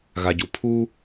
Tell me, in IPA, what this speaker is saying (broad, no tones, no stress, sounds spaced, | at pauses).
ɣ a ɟ u pʰ u